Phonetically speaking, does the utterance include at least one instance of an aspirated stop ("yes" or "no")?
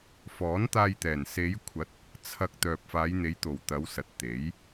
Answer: yes